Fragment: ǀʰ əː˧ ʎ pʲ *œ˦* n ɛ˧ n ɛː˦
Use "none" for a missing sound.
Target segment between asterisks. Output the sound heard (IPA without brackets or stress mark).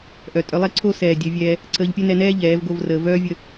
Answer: œ˦